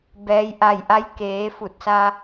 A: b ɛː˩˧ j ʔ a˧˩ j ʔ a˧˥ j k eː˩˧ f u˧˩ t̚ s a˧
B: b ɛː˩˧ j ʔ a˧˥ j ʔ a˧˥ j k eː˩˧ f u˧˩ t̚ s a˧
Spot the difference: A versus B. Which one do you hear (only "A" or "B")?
A